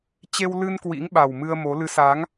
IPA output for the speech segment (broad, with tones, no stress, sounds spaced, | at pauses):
t͡ɕ e˧ w l ɨ˧ n k w ḭ˧˥ ŋ ɓ a˨˩ w m ɨ˧ ə̯ m o˨˦ l ɨ˨˦ s a˨˦ ŋ